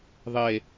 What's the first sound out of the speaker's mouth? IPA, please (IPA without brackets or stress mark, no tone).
ðˤ